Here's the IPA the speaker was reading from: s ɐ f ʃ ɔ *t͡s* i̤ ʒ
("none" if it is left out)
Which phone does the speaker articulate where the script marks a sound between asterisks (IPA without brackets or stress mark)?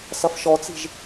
t͡s